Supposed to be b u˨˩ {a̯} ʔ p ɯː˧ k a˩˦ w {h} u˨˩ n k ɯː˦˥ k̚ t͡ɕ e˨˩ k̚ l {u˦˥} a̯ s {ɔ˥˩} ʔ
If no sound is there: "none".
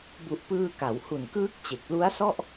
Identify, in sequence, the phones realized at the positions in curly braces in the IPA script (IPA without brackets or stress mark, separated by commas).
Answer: none, h, u˦˥, ɔ˥˩